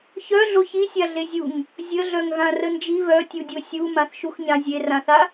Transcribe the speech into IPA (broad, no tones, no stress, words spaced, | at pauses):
çœɮo çisʲaɮe zʲuŋ | zʲəɮœŋɣã rənd͡ʒi βœtʲudʲo sʲu mãθʃuxɲã zʲerãθa